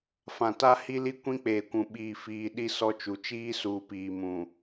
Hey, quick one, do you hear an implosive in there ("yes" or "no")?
yes